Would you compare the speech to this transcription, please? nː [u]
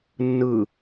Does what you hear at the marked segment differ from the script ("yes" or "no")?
yes